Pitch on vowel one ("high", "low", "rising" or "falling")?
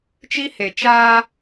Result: high